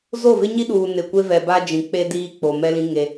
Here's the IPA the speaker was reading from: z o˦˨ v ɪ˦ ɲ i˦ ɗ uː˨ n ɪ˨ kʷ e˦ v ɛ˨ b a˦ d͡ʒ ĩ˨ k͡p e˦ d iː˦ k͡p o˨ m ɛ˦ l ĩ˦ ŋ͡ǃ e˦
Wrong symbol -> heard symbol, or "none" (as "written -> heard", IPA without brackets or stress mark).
ŋ͡ǃ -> ŋ